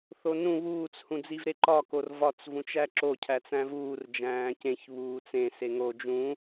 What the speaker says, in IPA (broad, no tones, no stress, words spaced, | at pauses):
θonũ βuːt͡s hũd͡zivɾeǃɒ korvɒt͡s vũt͡ʃæǁo cʰæt͡sæ̃vuːr d͡ʒæ̃ːcẽç βuːt͡sẽ seŋo d͡ʒũ